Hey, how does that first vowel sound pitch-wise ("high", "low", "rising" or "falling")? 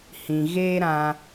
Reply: low